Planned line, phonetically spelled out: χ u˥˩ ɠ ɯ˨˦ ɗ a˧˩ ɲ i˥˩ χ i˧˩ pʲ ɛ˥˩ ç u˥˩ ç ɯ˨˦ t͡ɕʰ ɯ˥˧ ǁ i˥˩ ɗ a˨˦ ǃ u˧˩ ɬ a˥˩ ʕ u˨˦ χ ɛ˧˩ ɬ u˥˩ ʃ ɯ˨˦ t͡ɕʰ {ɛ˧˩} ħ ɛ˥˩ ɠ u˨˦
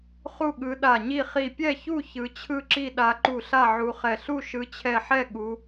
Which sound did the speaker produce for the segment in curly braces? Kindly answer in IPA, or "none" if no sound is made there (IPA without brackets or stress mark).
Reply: ɛ˧˩